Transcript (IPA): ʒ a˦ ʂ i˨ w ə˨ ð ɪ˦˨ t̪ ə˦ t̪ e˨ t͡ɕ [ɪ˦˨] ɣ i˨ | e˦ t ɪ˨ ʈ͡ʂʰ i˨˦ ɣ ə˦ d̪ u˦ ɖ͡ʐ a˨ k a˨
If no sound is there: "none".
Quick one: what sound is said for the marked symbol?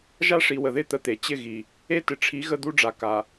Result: ɪ˦˨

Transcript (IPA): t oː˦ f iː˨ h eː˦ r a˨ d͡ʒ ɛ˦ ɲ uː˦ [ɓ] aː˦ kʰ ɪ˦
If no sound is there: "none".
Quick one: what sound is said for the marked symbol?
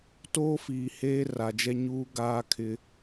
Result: ɡ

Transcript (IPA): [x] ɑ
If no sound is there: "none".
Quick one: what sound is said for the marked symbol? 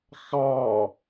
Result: x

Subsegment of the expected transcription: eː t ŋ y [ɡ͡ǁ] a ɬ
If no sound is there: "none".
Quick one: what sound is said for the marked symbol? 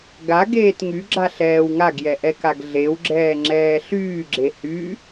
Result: ɡ͡ǁ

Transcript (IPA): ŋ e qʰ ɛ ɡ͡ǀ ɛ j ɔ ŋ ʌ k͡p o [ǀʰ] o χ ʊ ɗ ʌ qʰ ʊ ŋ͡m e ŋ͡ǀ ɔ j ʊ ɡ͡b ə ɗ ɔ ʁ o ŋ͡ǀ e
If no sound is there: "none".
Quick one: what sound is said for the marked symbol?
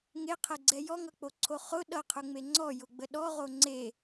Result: ǀʰ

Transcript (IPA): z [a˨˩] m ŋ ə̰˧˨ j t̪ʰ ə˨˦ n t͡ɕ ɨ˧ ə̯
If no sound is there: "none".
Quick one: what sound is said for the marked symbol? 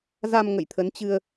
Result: a˧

